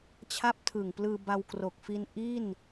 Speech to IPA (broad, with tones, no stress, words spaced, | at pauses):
t͡ɕʰa˦˥p̚tʰɯ˨˩ŋplɯː˧ba˧w kro˨˩k̚ fi˦˥n ʔi˥˩n